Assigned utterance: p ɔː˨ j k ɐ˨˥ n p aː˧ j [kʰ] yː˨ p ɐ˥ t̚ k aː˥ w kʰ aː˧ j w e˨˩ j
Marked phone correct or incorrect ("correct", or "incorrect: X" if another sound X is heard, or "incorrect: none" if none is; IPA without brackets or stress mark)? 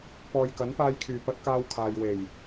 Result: correct